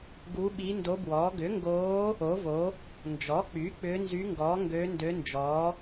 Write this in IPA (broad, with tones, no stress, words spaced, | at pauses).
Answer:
ɡu˧˥ɓi˧˥ndo˧˥bwɔː˩˥ ɡʏ˩˥ŋɡoː˧˥ | o˩˥vo˩˥ | nd͡ʒɔ˩˥k͡py˩˥ k͡pʏː˧˥nzy˧˥ŋɡɔː˩˥ ŋɡø˧˥ndø˧˥nd͡ʒɔː˩˥